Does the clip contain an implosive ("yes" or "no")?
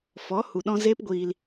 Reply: yes